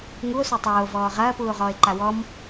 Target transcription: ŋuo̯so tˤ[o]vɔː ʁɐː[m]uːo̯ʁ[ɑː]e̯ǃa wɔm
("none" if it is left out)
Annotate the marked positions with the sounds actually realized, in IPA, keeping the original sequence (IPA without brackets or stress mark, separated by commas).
oː, p, ɔː